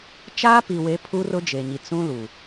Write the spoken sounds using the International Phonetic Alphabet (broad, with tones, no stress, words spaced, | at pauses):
t͡ʃaː˦pi˨we˨˦ pʰu˦rʊ˦d͡ʒe˨ɲi˨ t͡sũ˦lu˨